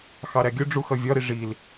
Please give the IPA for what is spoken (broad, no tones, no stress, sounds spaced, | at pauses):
x ɑ ɾ æ ɡʲ ʊ ɖ͡ʐ u x ʌ vʲ ɒ ɾ i ʐ i l